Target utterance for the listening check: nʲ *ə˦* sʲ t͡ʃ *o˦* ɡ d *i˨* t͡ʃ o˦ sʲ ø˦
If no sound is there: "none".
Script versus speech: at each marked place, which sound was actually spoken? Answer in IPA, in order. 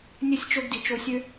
ə˦, o˦, i˨

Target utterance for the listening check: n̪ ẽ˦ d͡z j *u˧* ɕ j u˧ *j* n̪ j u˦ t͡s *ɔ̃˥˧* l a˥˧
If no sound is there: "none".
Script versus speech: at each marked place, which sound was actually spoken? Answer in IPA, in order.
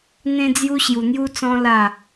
u˦, none, ɔ̃˦

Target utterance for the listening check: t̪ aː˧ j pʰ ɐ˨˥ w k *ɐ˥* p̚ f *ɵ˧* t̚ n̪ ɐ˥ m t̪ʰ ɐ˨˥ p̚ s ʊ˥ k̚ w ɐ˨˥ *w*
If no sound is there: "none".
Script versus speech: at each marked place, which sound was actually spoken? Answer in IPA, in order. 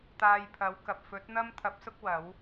ɐ˨, ɵ˨˥, w

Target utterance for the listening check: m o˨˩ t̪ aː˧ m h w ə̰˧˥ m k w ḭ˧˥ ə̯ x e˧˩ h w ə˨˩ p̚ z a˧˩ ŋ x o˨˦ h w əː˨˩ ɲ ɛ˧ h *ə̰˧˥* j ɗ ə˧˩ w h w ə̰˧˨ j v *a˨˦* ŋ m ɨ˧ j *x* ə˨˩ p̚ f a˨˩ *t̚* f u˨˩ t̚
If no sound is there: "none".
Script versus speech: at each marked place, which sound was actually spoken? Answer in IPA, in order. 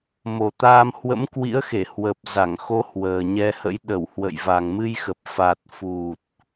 ə̰˧˥, a˨˩, x, t̚

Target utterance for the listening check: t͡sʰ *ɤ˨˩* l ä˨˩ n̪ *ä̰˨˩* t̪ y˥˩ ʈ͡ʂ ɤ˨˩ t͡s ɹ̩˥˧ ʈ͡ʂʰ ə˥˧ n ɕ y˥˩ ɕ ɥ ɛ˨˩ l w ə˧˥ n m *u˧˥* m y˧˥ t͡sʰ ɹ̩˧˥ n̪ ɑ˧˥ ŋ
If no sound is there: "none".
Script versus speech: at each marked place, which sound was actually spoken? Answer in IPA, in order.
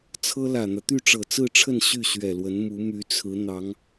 ɤ˥, ä˦, u˧˥

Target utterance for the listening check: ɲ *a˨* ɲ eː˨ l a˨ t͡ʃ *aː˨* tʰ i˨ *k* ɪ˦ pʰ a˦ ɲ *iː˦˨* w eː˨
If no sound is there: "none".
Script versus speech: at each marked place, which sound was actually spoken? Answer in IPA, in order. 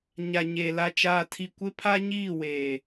a˨, aː˨, kʷ, iː˦˨

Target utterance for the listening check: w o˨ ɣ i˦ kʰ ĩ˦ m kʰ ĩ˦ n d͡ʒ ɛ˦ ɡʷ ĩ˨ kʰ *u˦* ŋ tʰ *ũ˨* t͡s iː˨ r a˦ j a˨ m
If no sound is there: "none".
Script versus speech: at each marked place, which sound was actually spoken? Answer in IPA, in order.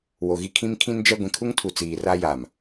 u˦, u˨

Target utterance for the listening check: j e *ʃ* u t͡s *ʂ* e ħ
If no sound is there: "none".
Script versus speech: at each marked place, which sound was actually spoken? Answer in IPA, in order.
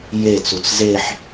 t͡s, z

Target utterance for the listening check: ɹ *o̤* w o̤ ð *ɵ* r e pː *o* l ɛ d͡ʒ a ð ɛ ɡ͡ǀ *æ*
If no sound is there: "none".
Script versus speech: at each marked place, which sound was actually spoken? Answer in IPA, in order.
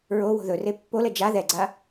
o, ɵ, o, a

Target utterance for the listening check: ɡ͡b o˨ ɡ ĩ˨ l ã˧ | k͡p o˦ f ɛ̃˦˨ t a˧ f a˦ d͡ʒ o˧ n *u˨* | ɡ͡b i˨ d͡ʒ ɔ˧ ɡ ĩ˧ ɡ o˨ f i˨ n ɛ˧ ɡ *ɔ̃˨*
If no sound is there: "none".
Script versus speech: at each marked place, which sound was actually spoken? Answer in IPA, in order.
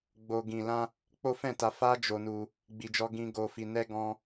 u˧, ɔ̃˧

